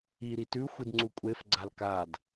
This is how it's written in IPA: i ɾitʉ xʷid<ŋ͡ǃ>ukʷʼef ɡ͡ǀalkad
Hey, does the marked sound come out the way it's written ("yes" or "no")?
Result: no